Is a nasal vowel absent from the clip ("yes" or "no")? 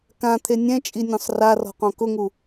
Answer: no